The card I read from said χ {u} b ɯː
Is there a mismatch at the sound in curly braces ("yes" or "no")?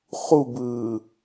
no